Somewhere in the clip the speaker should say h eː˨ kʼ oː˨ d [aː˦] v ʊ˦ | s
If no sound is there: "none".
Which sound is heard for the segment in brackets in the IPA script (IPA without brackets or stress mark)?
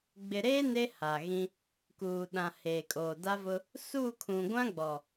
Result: a˦